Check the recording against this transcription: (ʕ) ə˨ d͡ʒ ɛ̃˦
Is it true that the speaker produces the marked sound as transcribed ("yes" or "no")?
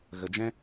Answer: no